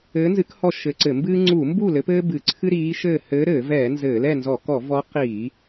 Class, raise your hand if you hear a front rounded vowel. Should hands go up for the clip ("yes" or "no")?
no